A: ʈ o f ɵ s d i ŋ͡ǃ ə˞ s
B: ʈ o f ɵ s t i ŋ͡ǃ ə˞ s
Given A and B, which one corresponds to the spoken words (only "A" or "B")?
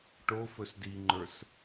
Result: A